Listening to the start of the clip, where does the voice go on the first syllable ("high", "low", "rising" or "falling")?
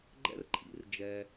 high